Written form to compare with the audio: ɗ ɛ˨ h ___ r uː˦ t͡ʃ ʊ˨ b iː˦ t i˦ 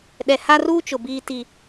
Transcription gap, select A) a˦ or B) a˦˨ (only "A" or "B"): A